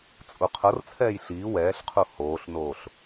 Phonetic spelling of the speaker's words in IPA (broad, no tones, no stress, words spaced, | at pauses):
t͡sʼuqʰɤrt͡sʰɛːj ɬiː wɛːɬqʰu hoːɬnoːɬ